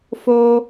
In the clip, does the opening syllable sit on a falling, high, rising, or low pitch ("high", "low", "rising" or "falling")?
high